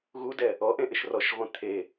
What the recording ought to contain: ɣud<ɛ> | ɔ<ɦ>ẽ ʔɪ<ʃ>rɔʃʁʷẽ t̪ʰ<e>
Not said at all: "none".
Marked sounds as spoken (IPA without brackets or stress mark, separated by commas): ɛ, ʔ, ʃ, e